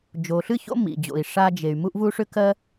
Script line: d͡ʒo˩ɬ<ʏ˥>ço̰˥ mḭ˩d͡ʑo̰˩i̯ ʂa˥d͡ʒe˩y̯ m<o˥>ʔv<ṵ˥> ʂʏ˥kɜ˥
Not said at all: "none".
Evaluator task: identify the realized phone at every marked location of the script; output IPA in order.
ɨ˥, u˥, u˥

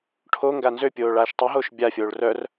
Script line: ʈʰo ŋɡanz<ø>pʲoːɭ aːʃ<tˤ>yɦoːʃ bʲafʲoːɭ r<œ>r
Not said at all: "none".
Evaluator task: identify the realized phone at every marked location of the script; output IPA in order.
ø, tˤ, œ

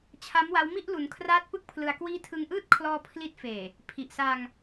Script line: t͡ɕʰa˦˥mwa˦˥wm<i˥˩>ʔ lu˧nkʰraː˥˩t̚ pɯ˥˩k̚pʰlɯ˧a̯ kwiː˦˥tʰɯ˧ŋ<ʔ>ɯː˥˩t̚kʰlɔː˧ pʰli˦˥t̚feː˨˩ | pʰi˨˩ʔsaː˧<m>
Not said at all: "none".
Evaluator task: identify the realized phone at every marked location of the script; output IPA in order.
i˥˩, ʔ, ŋ

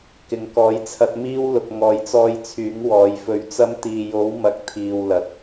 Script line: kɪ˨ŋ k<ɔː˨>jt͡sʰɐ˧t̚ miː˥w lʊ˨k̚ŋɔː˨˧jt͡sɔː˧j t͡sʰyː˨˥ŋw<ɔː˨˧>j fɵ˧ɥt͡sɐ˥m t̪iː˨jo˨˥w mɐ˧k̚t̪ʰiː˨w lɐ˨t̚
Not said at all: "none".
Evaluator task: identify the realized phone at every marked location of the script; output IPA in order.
ɔː˨˥, ɔː˨˧

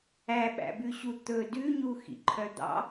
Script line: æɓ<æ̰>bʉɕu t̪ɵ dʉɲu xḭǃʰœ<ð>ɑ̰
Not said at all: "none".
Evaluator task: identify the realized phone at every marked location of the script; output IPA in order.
æ̰, d̪

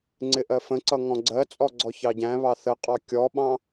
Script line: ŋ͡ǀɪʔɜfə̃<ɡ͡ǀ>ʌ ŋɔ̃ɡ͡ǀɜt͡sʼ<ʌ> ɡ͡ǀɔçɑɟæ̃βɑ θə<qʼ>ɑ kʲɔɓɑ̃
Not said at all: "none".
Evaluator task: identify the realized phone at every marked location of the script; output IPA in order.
ǀ, ɔ, qʼ

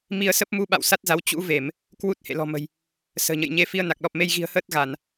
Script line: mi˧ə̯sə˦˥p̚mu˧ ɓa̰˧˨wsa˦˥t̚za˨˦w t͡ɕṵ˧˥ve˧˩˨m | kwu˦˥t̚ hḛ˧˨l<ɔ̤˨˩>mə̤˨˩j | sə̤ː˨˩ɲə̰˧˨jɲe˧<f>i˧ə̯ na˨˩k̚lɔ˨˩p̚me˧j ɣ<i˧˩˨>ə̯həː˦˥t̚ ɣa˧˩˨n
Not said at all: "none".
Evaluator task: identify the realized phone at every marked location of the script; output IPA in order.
ɔ̤˨˩, f, i̤˨˩

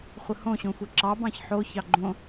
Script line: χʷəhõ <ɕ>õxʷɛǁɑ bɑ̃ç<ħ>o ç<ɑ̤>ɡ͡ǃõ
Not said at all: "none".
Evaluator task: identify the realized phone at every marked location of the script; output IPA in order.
ɕ, ħ, ɑ

